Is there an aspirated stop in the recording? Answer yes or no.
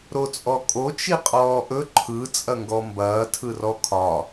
yes